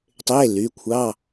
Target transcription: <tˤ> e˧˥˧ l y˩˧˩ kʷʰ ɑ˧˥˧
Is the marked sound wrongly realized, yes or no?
no